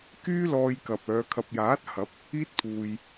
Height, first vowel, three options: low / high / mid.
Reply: high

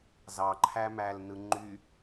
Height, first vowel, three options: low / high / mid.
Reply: low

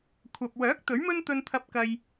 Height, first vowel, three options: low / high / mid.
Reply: low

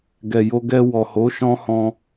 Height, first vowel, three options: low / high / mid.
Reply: mid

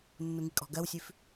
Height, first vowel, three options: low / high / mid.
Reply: high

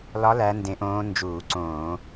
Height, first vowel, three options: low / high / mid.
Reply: low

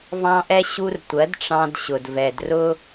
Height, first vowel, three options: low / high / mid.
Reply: low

